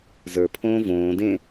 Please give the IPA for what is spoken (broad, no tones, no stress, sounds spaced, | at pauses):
z ə˞ pʰ õː v õː d ẽ